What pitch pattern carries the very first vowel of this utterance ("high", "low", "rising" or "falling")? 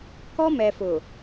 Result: high